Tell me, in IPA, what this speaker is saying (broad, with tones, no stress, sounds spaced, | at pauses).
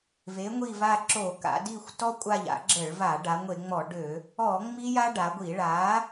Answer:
v e˩˧ ŋʷ i˧˩ v a˧˩ ǁ o˧˩˧ k a̰˩˧ d i˧˩ xʷ t ɔ˧ kʷʼ a˧˩ ʎ a̰˧˩˧ ɡ͡ǁ ə˧˩˧ ɭ v a˧˩˧ ɖ a˩˧ ŋʷ e˧˩˧ ŋ͡m ɔ˧˩˧ ɖ ø˧˩˧ | ɔ˧˩˧ ŋ͡m i˧ j a˧ ɖ a˩˧ ɡʷ i˧˩˧ ɭ a˩˧